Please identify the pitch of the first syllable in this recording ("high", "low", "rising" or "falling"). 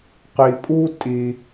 low